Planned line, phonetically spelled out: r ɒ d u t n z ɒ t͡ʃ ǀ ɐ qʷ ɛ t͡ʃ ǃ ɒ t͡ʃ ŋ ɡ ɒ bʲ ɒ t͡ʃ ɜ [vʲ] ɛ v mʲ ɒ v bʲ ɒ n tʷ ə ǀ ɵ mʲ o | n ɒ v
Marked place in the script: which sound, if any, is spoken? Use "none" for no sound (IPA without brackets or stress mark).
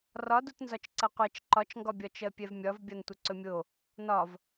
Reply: pʲ